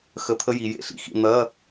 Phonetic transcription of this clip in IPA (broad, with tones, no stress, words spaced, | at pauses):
xə˧˥˧t̪ʰə˥ji˩˧jḛ˩˧ ɬḭ˩xḭ˧ n̪ɐ˧˥˧